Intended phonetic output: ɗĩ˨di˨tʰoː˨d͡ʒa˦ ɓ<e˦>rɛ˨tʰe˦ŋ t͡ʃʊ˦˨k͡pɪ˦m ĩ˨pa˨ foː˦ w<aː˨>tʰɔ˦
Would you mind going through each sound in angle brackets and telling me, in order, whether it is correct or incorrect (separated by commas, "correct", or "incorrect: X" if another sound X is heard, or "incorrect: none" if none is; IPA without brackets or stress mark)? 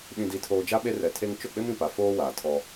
correct, correct